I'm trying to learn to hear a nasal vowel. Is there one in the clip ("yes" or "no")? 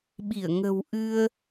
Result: no